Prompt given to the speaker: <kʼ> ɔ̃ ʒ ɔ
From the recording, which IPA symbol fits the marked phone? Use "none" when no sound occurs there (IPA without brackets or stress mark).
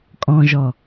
kʼ